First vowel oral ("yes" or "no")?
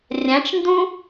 no